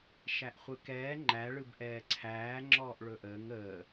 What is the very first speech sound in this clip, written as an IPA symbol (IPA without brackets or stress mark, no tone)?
ʃ